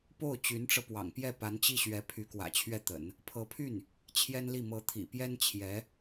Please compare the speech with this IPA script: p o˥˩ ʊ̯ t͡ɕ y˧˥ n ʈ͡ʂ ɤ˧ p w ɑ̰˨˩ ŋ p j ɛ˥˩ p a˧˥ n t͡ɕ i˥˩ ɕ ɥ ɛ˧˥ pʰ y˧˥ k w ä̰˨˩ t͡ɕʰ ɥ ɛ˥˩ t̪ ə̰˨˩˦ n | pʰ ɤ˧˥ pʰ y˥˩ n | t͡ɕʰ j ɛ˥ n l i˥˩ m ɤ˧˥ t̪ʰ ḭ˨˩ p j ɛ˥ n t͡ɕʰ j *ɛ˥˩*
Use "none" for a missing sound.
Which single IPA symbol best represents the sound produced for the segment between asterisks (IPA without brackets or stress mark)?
ɛ˧˥